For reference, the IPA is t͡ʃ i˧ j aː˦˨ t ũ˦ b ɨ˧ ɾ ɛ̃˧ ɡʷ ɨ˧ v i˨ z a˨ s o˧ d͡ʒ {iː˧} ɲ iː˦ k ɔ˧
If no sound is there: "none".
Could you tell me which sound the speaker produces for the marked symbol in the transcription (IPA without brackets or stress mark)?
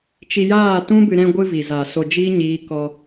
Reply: iː˦